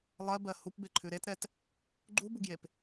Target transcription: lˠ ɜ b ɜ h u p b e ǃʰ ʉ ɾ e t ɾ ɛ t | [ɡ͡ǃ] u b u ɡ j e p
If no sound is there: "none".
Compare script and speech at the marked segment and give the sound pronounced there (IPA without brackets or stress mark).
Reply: ɡ͡ǃ